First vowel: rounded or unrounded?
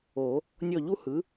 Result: rounded